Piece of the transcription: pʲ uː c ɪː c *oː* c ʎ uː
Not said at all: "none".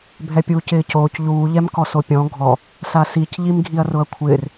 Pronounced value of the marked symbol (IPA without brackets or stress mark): oː